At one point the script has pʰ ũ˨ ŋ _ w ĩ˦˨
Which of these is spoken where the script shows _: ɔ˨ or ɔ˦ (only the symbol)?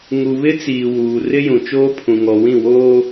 ɔ˨